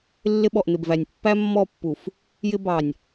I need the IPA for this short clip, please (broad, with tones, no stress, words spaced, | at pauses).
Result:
lːɪ˦ɓɔ˨ʔn̪ɪ˨bvæ˨nʲ pːæ˦mːɔ˦˨pːu˨f | jɪ˦ bɑ˨nʲ